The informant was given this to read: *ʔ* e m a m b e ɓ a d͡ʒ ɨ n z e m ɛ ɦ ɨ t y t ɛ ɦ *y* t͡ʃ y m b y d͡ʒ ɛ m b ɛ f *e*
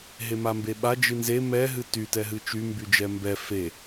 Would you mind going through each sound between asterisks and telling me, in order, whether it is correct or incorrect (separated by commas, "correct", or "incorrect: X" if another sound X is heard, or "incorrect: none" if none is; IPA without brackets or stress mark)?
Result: incorrect: ɦ, incorrect: ɨ, correct